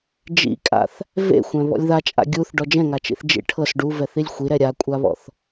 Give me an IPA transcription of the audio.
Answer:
d͡ʒ ḭ kʼ a̰ θ | v ḛ xʷ ɛ̃ β ɔ̰ lʲ ð a t͡ʃʼ a̰ ɡʲ u θ ɖ ɔ d͡ʒ ɛ̃ ŋ a t͡ʃ ḭ θ d͡ʒ ḭ ʈʰ ɤ s ɖ u v ɛ θ i lʲ xʷ i ɾ ɛ ɾʲ a kʷʼ a β ɔ̰ θ

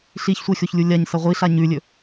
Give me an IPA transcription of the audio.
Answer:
ɬ i ç sʷ e xʲ o ç lʲ u lʲ a ɲ s ɐ ʁʷ i ɬ a ɲ ʉ lʲ ɵ

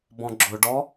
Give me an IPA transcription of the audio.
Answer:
b ɔ̃ ɡ͡ǁ ʊ ɖ ɔ

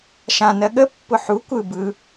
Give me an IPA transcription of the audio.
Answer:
ʃ ã n ɜ ɠ ə pː ʊ ħ u kʷ ɯ b ɯ

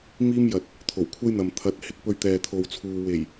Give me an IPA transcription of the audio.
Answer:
m iː˥ m j ɐ˨ t̚ | t̪ʰ o˨˩ w kʷʰ ɐ˥ j n̪ ɐ˨ m t̪ʰ ɐ˨˥ t̚ h ɪ˥ k̚ p ɵ˧ ɥ t̪ ɛː˨ t̪ʰ o˨ w t͡sʰ uː˨ w e˨˩ j

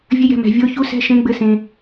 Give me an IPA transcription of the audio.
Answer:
vʲ ɘ˧˥ j ɛ̤˧˥˧ m ɛ̤˧ vʲ o˧˥ ç u˧˥ s ɛ̤˧˥˧ ʃ ẽ˧˥ ɡ͡b ɘ˧˥ s ẽ˧

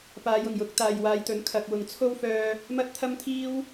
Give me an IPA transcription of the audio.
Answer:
p aː˨˧ j ʊ˨˩ ŋ j ʊ˨˥ k̚ t̪ aː˨ j w aː˨˧ j t̪ ɵ˨˥ n kʰ ɐ˨ k̚ w ʊ˨ ŋ t͡sʰ o˥ w f œː˧ | m ɐ˥ t̚ t̪ʰ ɐ˥ m t̪ʰ iː˥ w

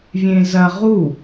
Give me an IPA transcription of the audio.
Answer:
vʲ ẽ z ɐ ʁ u

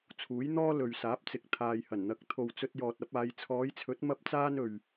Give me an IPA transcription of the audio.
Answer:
t͡sʰ uː˨˥ j n̪ ɔː˥ l ɵ˨ ɥ s aː˨˥ p̚ t͡s ɪ˨ k̚ t̪ʰ aː˨ j h ɐ˨˩ n n̪ ɐ˨˥ k̚ t̪ʰ o˨ w t͡s ɵ˧ t̚ j ɔː˨ t̚ ɐ˨˥ p̚ aː˨˧ j t͡sʰ ɔː˨˧ j t͡sʰ ɵ˨˥ t̚ m ɐ˥ p̚ t͡s aː˥ n ɵ˨ ɥ

